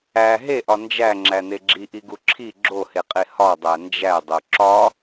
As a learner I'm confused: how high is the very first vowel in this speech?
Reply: low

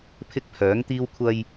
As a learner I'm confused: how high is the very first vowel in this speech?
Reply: high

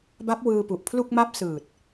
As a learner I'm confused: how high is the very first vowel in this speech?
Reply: low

